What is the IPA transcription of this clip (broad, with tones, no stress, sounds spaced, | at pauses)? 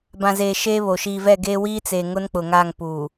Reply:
b ã˨ z eː˨ ʃ e˦ β o˨ ʃ iː˨ v ɛ˦˨ ɡ e˦ w iː˦ t͡s eː˨ ŋ ʊ˦ n k͡p ʊ˨ ŋ aː˦˨ ŋ p uː˨